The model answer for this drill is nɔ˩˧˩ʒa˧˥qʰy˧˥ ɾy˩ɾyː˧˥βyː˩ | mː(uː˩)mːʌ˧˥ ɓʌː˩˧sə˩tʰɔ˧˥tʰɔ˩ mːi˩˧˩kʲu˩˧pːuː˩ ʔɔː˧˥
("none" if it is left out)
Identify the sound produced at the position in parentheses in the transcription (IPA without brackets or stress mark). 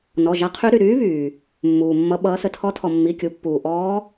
uː˩